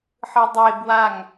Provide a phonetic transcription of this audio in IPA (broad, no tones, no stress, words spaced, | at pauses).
ħɯdˤeb waŋ